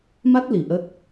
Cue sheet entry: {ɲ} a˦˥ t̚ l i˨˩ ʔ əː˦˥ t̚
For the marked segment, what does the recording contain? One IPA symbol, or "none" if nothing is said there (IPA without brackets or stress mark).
m